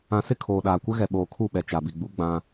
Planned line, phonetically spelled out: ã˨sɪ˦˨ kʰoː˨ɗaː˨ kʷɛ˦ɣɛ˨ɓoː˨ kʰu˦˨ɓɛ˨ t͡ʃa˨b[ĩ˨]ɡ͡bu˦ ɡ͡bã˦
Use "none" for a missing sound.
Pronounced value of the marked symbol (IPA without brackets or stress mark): i˨